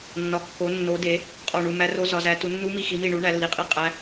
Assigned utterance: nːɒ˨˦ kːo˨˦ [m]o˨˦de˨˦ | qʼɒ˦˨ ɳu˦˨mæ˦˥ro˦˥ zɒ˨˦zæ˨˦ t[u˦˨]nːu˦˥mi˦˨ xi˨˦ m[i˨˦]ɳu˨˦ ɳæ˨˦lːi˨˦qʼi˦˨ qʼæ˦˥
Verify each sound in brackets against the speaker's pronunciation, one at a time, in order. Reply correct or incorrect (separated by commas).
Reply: incorrect, incorrect, incorrect